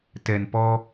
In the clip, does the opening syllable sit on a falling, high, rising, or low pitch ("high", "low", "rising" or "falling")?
low